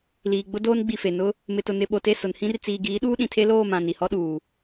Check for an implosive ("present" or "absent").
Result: present